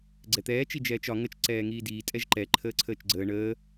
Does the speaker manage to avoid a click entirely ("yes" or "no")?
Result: no